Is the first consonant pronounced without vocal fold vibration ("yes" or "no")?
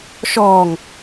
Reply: yes